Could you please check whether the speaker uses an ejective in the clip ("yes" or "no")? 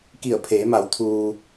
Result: no